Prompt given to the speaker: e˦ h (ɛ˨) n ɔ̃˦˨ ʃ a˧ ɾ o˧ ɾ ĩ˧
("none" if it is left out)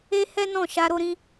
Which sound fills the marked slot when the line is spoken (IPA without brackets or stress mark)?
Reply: ɛ˦